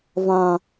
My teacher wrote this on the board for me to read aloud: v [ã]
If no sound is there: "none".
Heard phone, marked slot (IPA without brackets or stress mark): ã